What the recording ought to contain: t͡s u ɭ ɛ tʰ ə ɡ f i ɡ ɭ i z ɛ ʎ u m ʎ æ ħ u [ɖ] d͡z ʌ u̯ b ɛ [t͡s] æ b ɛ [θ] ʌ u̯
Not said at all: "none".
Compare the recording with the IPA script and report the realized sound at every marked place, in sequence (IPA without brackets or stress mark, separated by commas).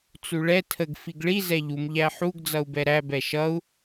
ɡ, ɾ, ʃ